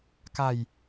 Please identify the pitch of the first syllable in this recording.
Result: falling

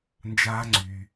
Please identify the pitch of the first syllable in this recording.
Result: high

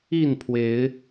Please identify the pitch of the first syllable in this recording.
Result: falling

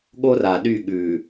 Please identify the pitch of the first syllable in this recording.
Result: high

